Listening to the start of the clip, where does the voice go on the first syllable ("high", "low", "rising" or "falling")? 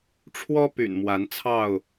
high